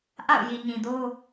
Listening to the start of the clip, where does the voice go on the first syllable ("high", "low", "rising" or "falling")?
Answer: falling